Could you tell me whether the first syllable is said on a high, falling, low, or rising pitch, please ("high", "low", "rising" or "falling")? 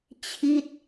falling